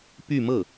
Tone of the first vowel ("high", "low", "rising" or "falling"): falling